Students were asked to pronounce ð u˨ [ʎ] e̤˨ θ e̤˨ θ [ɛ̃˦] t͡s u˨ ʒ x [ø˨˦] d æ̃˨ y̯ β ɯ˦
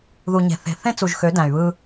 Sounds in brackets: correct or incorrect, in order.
incorrect: ɲ, incorrect: ẽ˦, correct

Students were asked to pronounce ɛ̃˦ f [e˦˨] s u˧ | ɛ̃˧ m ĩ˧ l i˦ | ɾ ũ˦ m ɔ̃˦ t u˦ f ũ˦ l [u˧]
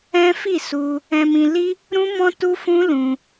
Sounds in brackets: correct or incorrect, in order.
incorrect: i˦˨, incorrect: ũ˧

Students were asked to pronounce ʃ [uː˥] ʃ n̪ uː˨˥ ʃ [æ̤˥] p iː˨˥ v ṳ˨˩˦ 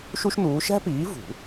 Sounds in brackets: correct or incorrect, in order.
incorrect: u˥, correct

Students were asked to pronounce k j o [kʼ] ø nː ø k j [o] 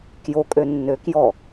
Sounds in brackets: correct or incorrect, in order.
correct, incorrect: ɔ

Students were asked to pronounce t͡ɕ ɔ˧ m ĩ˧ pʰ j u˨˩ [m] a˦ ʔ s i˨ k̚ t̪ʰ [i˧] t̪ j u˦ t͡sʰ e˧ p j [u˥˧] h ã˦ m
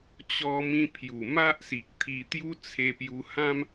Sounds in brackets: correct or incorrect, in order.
correct, correct, incorrect: u˧

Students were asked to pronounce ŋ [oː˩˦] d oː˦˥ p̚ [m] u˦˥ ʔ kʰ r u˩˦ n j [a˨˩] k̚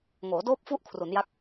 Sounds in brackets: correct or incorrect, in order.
correct, incorrect: f, incorrect: a˦˥

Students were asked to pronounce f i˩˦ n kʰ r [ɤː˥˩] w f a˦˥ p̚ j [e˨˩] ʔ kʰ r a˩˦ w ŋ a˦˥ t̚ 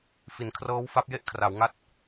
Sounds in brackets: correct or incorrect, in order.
incorrect: ɤː˦˥, incorrect: e˥˩

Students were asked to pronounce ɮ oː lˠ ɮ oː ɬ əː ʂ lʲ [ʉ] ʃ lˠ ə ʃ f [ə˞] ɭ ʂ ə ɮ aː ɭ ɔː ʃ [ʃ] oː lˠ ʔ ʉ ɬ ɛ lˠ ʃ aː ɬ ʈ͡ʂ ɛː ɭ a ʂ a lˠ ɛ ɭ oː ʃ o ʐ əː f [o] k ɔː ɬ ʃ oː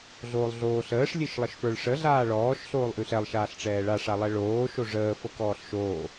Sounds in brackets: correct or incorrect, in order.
incorrect: ɨ, correct, incorrect: ɬ, incorrect: ɤ

